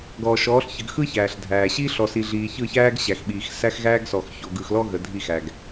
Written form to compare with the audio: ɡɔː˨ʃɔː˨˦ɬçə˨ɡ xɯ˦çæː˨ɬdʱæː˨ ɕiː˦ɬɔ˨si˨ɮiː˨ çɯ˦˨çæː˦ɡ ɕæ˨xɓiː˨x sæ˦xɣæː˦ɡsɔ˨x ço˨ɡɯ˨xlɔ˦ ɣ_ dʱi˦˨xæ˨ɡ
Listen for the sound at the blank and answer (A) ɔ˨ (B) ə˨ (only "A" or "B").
B